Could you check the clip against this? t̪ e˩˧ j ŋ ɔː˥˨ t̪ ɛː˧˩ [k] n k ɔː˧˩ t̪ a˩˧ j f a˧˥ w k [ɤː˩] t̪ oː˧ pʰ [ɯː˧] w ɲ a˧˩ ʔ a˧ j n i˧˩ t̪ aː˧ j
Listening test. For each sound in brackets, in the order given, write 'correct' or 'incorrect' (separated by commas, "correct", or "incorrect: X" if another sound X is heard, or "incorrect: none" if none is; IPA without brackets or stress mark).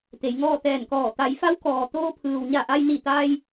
incorrect: none, incorrect: ɔː˩, incorrect: ɯː˩